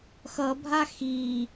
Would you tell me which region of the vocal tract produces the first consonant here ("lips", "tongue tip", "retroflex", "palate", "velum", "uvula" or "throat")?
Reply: velum